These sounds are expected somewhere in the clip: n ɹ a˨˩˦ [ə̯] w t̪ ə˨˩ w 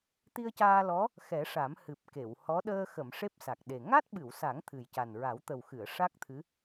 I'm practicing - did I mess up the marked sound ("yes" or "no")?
yes